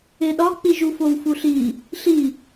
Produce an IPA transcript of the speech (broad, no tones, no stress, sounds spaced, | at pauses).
e ɗ ɒ k͡p i ʒ u f o w f u ɬ i | ɬ i